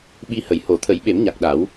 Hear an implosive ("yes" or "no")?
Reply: yes